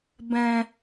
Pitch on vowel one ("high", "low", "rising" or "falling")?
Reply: high